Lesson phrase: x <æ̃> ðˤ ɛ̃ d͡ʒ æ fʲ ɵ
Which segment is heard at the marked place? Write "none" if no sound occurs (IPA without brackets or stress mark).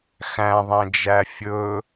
æ̃